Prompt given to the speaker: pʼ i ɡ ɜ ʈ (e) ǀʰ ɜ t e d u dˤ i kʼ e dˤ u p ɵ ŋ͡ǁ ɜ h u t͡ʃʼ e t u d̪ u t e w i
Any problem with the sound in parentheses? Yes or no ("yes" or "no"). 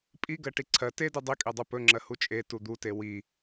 yes